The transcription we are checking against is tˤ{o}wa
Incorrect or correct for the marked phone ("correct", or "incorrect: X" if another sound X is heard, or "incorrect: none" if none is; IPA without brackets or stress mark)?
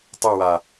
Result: incorrect: ɤ